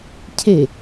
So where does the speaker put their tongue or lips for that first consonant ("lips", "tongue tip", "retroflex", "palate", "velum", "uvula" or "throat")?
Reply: palate